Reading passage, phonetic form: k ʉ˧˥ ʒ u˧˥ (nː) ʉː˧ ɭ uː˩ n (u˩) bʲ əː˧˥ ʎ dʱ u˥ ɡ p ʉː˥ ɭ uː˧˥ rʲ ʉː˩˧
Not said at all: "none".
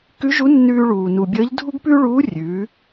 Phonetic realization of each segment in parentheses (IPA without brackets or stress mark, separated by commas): nː, u˩